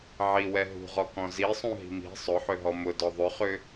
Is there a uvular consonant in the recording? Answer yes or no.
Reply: yes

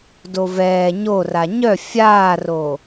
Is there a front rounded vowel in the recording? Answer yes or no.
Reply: yes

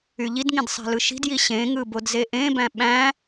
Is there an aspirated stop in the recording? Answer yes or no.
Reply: no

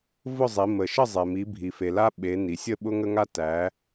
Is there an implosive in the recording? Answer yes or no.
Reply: yes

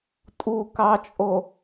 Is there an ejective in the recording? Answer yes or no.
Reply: yes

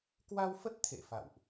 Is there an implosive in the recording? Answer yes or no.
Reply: no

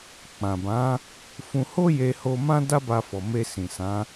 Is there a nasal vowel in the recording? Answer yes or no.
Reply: yes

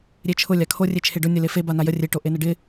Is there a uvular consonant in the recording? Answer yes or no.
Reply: no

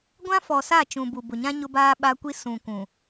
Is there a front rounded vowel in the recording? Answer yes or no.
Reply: no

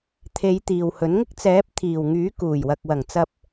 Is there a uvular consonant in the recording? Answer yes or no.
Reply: no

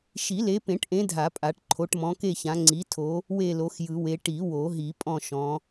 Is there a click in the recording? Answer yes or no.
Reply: yes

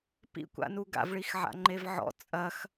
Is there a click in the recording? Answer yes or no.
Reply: yes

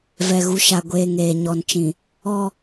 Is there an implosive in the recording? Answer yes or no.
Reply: no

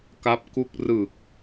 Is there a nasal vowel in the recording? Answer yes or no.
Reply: no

